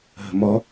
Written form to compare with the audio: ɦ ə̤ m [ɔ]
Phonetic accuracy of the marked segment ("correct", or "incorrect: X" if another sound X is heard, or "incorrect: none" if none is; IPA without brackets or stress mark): correct